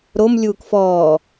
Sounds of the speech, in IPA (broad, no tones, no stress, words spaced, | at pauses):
ɾom lʲuːkfɔː